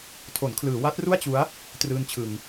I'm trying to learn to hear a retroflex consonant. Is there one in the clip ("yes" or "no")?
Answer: no